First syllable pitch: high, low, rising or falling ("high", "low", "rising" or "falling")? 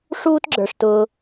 high